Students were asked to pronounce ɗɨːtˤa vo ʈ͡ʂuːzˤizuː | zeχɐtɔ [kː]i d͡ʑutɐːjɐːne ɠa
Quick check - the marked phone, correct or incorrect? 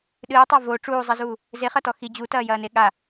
incorrect